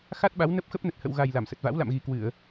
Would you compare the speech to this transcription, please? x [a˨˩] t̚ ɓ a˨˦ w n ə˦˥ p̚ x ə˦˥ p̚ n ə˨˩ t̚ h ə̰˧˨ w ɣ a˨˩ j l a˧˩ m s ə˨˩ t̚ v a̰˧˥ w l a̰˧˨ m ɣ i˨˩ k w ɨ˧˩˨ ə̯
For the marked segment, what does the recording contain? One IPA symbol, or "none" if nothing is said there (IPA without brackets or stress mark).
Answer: a˦˥